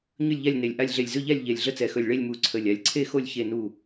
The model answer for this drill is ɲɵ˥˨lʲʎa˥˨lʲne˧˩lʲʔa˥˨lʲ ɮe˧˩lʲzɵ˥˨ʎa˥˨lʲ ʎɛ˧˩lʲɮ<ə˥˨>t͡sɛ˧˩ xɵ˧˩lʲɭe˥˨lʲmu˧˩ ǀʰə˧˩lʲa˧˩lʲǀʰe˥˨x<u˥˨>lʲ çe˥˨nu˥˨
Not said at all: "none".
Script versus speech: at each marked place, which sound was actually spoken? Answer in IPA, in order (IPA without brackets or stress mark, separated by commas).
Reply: ə˥˨, o˥˨